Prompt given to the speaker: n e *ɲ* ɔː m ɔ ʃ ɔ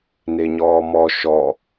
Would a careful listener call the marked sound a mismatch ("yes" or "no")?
no